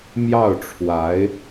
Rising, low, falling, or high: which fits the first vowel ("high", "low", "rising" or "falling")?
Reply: falling